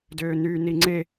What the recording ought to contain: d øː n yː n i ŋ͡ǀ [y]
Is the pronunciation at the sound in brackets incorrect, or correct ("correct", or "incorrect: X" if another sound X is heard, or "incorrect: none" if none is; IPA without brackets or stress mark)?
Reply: incorrect: e